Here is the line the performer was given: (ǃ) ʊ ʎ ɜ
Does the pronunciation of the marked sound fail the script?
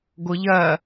yes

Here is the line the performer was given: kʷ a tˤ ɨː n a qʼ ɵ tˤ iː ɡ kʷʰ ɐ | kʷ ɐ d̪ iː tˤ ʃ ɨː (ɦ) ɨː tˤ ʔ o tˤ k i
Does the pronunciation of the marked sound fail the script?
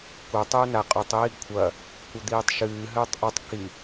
no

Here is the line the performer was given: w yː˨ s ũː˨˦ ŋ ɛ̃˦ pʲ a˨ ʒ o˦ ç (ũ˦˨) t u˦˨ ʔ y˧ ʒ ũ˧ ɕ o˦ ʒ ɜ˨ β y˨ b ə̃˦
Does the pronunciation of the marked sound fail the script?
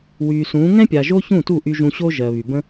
no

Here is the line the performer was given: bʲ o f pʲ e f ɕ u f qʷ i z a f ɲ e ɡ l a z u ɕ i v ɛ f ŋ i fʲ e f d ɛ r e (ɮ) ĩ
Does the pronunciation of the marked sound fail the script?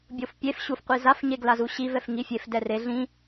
no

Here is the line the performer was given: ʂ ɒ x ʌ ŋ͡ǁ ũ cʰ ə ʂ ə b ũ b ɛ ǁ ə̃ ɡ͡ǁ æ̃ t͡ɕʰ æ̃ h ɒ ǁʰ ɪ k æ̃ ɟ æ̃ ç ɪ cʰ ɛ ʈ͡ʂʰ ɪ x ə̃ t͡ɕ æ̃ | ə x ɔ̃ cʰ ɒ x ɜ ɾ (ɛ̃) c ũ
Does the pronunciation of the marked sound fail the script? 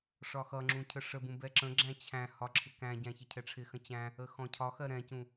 no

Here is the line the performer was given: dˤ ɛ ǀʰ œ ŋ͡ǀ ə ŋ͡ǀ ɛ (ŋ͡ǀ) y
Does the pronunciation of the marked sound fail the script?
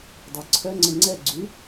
yes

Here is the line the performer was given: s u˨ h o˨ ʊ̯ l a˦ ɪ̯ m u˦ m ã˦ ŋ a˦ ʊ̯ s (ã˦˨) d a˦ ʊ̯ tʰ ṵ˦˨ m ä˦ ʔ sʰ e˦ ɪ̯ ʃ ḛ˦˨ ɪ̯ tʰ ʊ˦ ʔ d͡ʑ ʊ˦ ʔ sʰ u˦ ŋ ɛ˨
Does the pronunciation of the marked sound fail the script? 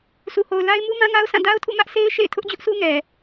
no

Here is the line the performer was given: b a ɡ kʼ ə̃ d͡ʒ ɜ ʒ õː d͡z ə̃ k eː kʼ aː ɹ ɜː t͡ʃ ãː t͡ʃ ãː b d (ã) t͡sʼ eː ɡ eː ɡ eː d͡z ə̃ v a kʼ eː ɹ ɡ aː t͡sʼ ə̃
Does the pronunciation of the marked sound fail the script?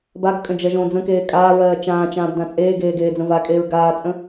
no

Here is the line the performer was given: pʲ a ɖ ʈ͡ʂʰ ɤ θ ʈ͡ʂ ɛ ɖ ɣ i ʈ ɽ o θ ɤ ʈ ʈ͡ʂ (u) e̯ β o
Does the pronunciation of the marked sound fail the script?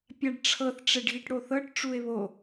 no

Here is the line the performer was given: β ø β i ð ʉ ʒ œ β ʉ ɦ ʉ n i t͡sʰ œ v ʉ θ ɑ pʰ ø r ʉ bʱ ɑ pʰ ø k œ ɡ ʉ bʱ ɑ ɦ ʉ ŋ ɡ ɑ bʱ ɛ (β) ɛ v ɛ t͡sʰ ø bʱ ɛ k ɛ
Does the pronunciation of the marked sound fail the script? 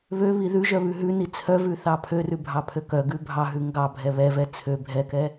no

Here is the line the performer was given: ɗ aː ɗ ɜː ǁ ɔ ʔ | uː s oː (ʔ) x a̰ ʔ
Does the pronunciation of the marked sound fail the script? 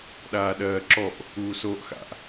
no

